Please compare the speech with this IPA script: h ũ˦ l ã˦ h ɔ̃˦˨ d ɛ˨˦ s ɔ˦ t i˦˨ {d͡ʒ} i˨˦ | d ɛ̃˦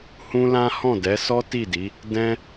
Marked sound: incorrect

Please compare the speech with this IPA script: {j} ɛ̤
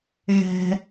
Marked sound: incorrect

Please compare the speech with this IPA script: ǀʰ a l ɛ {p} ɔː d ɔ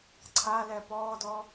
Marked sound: correct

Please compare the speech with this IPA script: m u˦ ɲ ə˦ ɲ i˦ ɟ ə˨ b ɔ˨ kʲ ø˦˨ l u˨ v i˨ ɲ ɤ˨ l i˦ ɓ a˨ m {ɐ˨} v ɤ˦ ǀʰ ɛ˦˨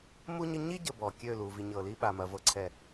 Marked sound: correct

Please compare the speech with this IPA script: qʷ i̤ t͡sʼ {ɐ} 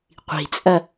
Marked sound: correct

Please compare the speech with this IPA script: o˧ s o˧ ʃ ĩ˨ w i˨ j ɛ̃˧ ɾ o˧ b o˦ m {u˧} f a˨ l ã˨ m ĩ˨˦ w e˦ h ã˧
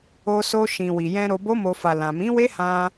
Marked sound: incorrect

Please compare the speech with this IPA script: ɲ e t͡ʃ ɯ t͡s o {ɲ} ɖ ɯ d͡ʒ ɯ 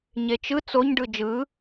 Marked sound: correct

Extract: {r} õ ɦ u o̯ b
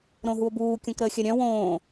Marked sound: incorrect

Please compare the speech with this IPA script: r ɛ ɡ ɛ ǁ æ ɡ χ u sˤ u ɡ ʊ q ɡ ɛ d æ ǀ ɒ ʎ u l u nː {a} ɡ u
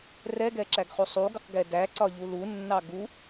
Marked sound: incorrect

